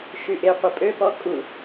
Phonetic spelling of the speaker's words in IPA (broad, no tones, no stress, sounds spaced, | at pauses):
ʃ y ʔ e qʷ ə pʼ ø p ɔ kʼ u